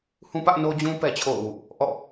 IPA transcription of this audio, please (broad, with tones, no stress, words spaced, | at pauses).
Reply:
hũ˦pä˦ʔ no˦d͡ʑũ˦ pɛ˦t͡ɕʰo̰˦˨ʊ̯wṵ˦˨ | ʔɔ̰˦˨